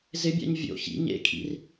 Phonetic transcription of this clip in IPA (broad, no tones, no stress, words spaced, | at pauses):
zɪbʲa̰ɲ vʲo̰ çḭ ɲḛkʰḭr